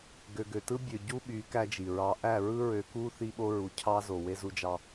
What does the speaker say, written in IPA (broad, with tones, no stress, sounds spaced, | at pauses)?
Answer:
ɡ ø˨ ɡ ø˨ t ɯ˦ bʲ ø˨ ɟ u˦ ɓ y˨˦ k æ˦ d͡ʒ i˨ ɹ ɑ˦ ʔ æ˦˨ ɹ ɯ˦ ɹ ø˨ k u˦ θ i˦ ɓ o˦ ɹ u˨ cʰ ɑ˦ z o˨ w e˦ z u˦ d͡ʒ ɑ˦